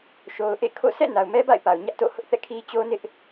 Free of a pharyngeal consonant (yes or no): yes